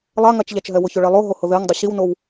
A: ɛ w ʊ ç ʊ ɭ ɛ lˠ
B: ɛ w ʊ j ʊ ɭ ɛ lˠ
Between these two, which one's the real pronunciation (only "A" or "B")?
A